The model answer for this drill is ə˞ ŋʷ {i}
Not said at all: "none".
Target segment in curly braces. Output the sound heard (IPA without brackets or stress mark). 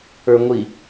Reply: i